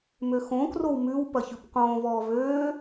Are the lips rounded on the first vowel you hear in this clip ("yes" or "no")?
yes